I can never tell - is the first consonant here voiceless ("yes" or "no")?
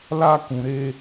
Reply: no